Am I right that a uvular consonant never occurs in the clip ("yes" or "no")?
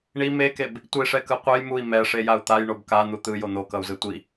no